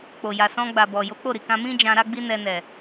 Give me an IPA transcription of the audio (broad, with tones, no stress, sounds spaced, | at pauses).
k͡p o˨ j a˨ s ɔ̃˧ ɡ͡b a˨ b ɔ˨ j o˨˦ k͡p o˦˨ ɾ i˨ k ã˧ m ĩ˦ d͡ʒ ã˧ ɾ a˦ ɡ͡b i˦ n ɛ˧ n ɛ˨